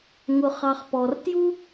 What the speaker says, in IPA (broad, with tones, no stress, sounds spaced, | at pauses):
ŋ ʊ˨ χ ɑ˨ χ p ɔ˩ r t j u˥